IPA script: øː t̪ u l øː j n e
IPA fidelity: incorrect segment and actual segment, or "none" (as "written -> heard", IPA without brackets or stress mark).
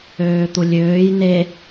l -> lʲ